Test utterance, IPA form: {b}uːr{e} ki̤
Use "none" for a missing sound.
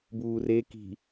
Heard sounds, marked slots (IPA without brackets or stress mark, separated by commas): b, e